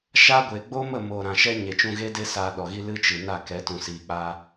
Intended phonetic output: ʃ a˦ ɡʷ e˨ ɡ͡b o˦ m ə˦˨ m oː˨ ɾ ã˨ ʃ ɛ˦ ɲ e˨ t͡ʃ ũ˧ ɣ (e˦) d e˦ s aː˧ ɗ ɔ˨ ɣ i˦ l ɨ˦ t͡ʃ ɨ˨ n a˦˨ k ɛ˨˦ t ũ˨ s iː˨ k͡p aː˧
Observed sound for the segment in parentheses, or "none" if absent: e˦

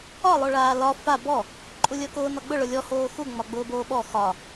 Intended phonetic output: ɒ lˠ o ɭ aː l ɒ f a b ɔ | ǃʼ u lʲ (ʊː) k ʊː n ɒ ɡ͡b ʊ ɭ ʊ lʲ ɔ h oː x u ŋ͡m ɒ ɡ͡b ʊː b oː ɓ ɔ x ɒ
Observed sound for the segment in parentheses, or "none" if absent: əː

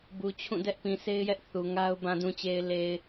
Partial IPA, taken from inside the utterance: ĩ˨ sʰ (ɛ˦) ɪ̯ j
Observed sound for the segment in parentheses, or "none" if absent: e˦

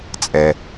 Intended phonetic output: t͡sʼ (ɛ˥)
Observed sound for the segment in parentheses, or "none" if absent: ɛ˩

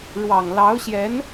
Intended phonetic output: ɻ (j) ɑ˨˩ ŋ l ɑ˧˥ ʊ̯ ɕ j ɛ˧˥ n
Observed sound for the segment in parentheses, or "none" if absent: w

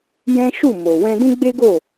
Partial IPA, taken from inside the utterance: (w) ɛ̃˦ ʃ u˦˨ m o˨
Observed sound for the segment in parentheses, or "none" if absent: j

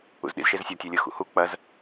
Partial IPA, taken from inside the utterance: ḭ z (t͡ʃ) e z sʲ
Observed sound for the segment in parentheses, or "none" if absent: ʃ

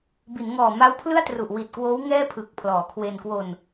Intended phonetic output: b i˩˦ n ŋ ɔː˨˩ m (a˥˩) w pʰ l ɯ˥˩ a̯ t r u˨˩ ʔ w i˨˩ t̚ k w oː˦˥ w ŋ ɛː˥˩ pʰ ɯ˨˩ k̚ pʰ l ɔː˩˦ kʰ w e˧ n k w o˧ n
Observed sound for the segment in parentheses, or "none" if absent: a˦˥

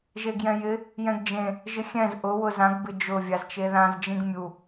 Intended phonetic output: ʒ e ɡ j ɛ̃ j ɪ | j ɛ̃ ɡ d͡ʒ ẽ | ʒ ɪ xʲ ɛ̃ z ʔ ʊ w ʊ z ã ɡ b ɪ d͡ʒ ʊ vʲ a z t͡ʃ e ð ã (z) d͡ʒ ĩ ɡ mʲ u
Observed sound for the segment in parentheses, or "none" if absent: z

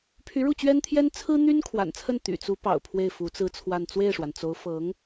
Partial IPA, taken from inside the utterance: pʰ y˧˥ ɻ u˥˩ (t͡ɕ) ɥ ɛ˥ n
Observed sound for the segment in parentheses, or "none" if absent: t͡ɕ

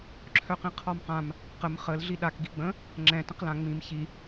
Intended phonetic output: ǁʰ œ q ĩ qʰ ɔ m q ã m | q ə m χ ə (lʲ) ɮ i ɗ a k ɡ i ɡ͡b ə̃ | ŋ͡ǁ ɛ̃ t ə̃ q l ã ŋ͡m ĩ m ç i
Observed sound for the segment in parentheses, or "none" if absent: l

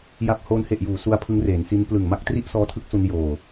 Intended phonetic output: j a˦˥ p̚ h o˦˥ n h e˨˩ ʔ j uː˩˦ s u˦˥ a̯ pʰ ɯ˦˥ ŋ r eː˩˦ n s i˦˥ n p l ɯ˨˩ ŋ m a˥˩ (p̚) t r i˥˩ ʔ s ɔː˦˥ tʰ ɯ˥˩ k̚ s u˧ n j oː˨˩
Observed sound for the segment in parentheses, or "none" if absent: k̚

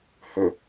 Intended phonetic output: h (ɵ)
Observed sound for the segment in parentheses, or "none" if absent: ɵ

